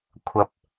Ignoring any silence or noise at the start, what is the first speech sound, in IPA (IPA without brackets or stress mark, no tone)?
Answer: kʷʰ